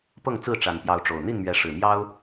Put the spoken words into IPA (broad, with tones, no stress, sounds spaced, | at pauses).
p ɤ˥˨ ŋ t͡s ɹ̩˥˨ ʈ͡ʂ a˨˩ n p j ɑ˨˦ ʊ̯ ʈ͡ʂ o˨˩ ʊ̯ n̪ i˥˨ n m ɥ ɛ˨˦ ʂ ɻ̩˨˩ m j ɑ˦ ʊ̯